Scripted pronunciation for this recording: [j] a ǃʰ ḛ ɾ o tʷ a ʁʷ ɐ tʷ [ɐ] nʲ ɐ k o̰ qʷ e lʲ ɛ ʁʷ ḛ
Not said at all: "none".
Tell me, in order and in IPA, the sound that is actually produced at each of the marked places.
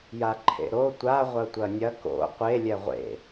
j, ɐ

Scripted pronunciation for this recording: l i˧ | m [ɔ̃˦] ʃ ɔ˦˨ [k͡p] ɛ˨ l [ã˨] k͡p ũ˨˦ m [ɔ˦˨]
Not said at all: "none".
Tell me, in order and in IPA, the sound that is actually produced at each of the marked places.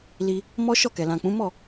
ɔ˦, k, ã˨, ɔ˦˨

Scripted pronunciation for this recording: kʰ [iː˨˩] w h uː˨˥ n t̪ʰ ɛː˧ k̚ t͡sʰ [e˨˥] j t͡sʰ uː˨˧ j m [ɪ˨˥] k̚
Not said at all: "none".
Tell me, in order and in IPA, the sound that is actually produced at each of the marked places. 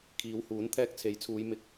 iː˨˧, e˨˥, ɪ˨˥

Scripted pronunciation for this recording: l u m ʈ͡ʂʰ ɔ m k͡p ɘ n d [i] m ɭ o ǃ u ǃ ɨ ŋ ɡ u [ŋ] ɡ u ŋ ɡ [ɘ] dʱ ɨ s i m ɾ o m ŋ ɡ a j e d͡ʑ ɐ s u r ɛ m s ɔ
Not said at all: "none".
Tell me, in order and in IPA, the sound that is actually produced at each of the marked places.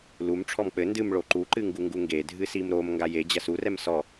ɨ, ŋ, e

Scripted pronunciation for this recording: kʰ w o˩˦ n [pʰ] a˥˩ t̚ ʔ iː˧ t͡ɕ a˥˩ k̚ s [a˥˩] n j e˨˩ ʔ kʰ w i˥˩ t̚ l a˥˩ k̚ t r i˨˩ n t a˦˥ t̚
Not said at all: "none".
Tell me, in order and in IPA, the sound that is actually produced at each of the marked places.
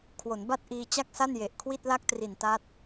b, a˥˩

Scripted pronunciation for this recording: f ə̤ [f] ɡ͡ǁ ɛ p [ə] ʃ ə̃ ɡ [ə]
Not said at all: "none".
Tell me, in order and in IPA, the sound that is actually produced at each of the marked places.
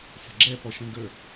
none, ɔ, ə

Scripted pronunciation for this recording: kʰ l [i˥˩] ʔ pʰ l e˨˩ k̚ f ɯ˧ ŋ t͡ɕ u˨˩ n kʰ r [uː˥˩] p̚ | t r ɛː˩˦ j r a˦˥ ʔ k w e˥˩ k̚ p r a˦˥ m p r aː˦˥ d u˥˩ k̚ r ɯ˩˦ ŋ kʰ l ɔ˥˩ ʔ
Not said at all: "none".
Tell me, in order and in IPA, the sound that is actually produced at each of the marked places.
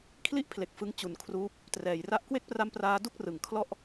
i˥˩, uː˦˥

